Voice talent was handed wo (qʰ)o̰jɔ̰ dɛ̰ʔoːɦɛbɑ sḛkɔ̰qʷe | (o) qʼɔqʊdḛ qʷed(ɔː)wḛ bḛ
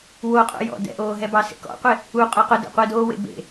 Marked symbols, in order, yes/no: no, no, no

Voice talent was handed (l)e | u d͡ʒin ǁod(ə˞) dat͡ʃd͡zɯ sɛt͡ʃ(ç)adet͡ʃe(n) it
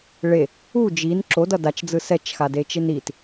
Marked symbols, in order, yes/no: no, no, no, yes

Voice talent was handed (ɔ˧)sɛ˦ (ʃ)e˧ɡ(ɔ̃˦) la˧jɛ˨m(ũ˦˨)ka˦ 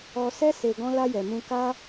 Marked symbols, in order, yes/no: yes, no, yes, no

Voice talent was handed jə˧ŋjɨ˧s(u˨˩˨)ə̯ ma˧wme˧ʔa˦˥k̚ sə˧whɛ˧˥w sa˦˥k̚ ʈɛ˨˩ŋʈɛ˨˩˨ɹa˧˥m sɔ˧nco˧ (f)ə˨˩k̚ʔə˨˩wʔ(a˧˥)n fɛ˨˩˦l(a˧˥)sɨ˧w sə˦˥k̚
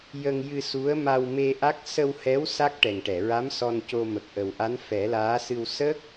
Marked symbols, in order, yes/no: no, no, yes, no

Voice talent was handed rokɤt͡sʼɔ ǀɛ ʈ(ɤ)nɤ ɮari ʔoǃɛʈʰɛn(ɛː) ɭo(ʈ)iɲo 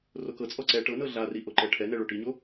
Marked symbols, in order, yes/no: yes, no, yes

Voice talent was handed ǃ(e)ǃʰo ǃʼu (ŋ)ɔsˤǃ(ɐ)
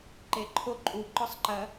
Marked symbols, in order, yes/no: yes, no, yes

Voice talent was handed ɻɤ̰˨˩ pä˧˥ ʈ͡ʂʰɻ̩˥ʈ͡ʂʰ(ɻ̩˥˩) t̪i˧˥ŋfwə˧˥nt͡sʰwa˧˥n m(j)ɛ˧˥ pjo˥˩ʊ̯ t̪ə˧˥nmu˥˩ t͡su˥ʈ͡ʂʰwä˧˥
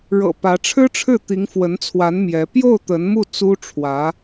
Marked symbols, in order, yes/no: yes, yes

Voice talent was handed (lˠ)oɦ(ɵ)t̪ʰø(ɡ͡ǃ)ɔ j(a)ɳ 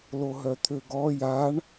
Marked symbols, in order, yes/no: no, no, no, yes

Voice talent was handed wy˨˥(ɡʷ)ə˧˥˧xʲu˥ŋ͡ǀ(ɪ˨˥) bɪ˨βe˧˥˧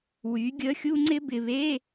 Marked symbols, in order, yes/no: no, no

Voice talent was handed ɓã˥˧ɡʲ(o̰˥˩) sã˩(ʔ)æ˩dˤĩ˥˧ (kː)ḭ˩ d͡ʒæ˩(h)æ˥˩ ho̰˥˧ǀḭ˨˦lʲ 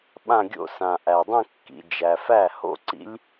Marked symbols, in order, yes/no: no, yes, yes, no

